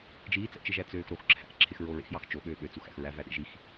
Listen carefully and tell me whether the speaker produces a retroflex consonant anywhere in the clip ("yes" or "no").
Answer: no